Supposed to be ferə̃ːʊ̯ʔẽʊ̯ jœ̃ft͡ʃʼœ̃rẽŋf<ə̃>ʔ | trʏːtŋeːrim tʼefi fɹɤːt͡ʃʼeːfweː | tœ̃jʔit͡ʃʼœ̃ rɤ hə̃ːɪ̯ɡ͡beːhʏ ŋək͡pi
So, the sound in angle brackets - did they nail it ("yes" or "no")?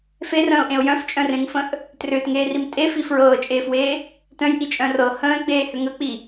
yes